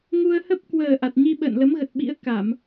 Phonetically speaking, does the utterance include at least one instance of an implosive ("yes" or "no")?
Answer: yes